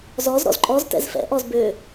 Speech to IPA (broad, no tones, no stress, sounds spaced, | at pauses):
z ɔ z ɾ ɔ̰ z ǃʼ ɔ z t ɛ̰ z f ɛ̰ ʔ ɔ z b ø